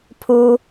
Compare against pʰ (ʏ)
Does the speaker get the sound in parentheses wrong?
yes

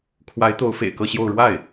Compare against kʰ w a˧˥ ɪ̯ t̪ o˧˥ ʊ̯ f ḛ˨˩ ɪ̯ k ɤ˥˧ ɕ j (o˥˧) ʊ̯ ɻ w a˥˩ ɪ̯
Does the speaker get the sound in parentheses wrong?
no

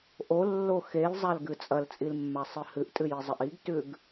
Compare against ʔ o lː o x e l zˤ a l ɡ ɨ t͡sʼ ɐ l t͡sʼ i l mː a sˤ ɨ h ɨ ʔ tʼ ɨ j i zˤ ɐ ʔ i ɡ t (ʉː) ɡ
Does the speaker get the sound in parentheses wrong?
yes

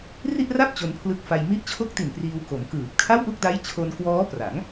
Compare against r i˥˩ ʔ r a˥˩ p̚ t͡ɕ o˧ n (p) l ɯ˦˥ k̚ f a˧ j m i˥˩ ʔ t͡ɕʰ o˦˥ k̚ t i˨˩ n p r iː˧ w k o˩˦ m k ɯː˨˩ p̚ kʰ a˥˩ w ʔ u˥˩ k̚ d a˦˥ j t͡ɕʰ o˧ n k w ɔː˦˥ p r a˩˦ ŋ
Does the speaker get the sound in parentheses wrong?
yes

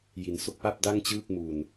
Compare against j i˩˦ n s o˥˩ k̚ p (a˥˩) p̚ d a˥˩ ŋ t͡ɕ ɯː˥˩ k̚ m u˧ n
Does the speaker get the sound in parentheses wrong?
no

